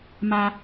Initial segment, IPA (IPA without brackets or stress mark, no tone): m